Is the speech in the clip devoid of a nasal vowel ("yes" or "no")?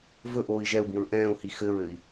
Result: no